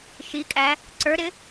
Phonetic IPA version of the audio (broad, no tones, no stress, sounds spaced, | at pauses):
ʃ i kʼ æ | ǀ ə˞ ɾ ɪ